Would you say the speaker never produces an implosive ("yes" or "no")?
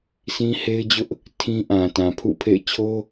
yes